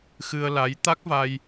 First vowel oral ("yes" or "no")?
yes